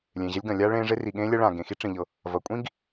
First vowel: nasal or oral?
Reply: nasal